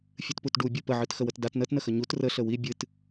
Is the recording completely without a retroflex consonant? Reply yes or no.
no